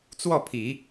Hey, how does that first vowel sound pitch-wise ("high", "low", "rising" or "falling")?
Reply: falling